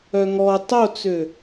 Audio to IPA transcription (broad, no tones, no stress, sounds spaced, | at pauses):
œ ŋ ɔ tˤ o t͡s ø